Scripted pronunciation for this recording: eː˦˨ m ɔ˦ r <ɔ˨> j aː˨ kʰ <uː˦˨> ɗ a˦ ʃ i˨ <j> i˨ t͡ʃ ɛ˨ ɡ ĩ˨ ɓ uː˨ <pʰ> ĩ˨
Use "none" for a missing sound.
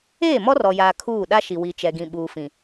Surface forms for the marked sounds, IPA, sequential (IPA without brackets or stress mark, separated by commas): ɔ˨, uː˦˨, w, f